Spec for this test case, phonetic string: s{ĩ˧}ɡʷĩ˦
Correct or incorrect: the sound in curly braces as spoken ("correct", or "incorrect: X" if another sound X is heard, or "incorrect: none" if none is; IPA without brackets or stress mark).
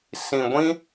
correct